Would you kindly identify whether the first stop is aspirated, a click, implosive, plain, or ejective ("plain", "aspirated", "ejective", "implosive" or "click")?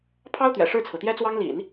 aspirated